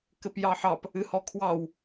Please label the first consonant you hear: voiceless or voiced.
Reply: voiceless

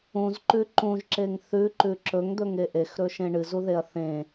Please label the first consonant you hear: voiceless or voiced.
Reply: voiced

